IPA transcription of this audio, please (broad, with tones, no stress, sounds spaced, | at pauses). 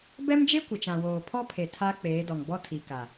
b ɛ˦ m d͡ʒ e˦ kʷ ɪ˨ t͡ʃ ã˨ w oː˨ pʰ ɔ˦ pʰ e˨ tʰ a˦ k͡p eː˨˦ d ɔ˨ ŋ b ɔ˦ tʰ i˨ k a˨